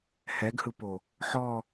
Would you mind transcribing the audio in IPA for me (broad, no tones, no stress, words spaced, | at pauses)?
hɛɡhɯpo | ħɔ